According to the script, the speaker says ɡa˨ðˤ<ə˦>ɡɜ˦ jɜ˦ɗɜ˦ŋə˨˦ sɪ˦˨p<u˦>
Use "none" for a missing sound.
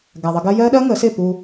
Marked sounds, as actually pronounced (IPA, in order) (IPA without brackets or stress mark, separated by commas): ə˧, u˧